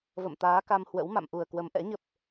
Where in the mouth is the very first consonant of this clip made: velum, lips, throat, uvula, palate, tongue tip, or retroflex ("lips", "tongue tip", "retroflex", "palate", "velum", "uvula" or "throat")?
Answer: lips